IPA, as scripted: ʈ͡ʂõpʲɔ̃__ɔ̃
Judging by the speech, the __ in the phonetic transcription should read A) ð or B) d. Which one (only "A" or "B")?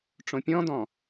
B